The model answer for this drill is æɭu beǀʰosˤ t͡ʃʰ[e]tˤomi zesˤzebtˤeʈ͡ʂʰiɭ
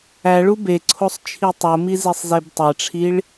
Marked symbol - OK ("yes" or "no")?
no